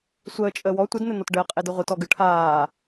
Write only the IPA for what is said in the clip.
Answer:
sʷ əː t͡ʃʼ əː w ɔ tʷ ɘ d n̪ ɘ n̪ ɔ t ɖ əː qʼ e d ɯ ʁʷ ɯ t ɔ ɡ ɯ ʈʰ aː

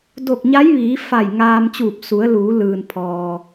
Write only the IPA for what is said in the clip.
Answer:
d o˧˩ k̚ ɲ a˧˥ j ʋ iː˩˧ f a˧˩ j ŋ aː˧ m t͡ɕ uː˧˩ p̚ s u˩˧ ə̯ l uː˩˧ l ɯː˩ n pʰ ɔː˩

